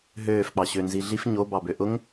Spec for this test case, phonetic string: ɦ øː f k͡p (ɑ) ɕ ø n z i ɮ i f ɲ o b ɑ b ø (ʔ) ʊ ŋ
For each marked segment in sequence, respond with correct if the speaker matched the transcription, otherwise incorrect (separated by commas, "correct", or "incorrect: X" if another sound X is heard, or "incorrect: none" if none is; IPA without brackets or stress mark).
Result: correct, correct